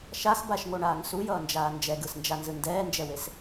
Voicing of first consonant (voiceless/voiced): voiceless